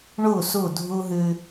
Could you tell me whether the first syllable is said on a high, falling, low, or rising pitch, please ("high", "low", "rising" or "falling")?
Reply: falling